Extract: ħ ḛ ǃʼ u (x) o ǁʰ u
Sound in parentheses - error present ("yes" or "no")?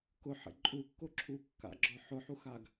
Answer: yes